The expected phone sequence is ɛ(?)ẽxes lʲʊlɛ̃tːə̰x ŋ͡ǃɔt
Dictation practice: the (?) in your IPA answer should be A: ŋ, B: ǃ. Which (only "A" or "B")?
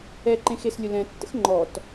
B